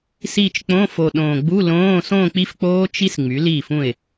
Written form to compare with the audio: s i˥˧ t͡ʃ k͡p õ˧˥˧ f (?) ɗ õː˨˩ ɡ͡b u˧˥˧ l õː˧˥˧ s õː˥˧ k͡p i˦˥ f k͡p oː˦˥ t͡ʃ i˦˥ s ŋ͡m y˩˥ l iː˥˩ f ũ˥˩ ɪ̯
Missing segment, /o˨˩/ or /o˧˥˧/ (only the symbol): o˨˩